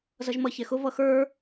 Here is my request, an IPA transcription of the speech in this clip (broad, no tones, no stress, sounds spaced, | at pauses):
z ʌ ʒ m ʌ ç ɛ x ʊ v ʌ x ə˞